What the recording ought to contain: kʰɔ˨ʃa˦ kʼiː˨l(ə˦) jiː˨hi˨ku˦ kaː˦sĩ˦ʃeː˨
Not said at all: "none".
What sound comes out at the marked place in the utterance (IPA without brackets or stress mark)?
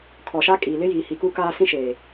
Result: ɪ˦